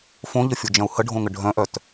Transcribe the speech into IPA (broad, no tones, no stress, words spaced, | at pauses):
fõʎəfʲod͡ʒɐ̃u̯ həɖʱõŋə ɖʱœ̃ʔœt